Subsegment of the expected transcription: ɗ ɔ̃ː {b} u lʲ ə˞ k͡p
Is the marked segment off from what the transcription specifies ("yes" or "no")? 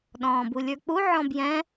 no